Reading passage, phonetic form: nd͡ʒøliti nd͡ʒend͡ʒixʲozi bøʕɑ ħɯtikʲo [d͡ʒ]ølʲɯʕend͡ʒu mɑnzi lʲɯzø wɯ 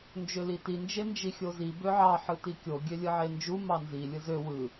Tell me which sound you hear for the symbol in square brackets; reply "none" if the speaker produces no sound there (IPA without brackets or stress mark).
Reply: ɡʲ